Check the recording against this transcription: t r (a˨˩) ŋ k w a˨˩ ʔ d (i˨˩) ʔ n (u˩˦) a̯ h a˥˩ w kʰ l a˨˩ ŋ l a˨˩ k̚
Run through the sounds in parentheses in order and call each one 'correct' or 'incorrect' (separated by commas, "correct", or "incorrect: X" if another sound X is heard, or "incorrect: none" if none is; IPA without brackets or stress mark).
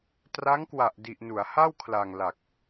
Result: incorrect: a˦˥, correct, correct